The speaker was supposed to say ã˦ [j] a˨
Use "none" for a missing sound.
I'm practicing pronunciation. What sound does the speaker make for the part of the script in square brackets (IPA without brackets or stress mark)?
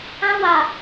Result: w